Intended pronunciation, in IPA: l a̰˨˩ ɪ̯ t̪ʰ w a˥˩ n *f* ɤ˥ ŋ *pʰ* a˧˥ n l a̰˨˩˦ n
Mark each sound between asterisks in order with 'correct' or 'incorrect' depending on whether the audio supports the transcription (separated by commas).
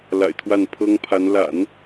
incorrect, correct